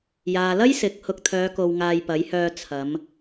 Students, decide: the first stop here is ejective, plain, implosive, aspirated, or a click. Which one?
plain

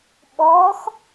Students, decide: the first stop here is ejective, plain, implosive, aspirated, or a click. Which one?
implosive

